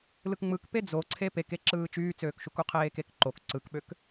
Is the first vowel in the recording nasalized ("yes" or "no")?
no